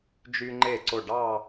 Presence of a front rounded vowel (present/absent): present